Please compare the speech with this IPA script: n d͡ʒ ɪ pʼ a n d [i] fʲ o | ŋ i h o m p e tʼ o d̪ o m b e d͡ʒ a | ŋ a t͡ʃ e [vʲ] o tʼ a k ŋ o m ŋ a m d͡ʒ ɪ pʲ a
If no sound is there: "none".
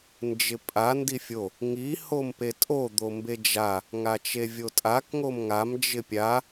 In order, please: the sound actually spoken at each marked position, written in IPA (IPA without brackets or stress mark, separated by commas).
i, vʲ